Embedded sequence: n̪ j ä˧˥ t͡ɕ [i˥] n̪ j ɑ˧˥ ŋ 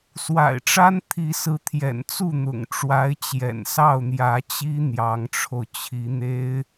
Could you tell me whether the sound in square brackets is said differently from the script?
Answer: no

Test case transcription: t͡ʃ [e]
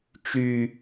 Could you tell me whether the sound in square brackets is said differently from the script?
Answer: yes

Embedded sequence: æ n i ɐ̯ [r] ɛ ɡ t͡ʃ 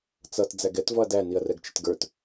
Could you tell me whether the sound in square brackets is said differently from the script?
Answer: no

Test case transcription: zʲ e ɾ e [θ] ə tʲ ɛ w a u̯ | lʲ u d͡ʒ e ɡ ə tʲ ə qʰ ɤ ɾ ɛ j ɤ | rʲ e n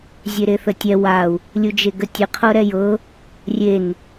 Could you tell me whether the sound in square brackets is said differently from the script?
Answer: no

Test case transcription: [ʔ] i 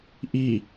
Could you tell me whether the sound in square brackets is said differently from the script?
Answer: no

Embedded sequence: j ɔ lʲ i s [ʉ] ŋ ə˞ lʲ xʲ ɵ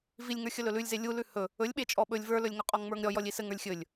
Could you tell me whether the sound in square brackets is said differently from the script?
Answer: yes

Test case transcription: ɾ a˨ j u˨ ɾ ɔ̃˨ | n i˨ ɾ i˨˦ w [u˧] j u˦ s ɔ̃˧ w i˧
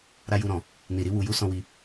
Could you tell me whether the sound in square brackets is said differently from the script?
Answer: no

